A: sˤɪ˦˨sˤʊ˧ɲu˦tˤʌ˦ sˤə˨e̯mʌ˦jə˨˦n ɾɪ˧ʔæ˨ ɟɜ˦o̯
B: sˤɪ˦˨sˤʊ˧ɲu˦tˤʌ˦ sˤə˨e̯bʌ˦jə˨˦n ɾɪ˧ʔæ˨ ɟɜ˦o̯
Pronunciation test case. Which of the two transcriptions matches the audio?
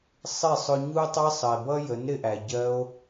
B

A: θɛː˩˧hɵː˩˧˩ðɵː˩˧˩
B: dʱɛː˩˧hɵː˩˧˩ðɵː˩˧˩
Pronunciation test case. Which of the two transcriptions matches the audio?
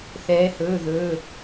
A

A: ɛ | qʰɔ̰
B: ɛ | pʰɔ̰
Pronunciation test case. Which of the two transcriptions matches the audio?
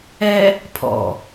B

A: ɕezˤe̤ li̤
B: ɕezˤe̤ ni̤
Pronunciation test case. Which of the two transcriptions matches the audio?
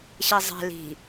A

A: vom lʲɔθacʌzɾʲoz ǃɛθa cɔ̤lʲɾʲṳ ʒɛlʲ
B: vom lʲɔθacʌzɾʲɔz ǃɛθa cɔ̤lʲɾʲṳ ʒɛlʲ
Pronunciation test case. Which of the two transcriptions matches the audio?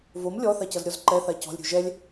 B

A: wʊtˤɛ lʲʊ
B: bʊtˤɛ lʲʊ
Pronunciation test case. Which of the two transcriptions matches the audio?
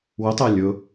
A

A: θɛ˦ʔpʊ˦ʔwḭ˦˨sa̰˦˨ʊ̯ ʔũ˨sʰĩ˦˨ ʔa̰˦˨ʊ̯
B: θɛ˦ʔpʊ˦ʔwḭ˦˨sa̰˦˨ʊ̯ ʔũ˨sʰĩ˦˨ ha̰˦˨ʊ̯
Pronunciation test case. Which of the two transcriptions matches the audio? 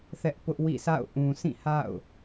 B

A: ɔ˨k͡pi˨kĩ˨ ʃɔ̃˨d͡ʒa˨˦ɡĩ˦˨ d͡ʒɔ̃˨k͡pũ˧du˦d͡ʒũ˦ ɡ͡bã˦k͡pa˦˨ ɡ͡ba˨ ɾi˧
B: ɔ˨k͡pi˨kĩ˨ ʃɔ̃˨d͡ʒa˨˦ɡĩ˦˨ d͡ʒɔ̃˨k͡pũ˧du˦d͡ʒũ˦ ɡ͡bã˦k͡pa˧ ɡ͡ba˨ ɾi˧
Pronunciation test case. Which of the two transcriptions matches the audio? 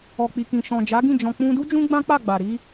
A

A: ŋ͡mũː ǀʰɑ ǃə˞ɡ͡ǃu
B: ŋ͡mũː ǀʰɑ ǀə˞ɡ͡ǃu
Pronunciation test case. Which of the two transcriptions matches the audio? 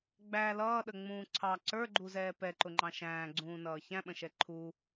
B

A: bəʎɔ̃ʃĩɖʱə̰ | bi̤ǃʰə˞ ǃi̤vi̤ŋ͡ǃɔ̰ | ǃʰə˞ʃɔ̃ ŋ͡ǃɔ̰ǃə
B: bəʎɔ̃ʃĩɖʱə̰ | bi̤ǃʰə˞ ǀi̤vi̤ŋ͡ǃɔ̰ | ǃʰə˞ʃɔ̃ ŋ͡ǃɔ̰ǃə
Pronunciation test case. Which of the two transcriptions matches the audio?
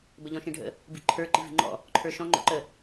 A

